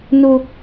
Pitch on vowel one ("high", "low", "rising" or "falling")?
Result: high